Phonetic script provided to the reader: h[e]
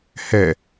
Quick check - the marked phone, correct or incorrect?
incorrect